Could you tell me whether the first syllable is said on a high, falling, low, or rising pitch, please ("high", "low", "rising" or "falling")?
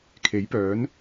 rising